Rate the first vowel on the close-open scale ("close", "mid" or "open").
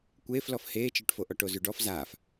mid